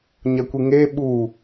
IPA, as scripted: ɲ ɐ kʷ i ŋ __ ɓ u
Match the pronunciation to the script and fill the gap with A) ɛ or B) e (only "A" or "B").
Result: B